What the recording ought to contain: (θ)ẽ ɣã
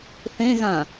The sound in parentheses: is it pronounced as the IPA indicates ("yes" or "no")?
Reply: yes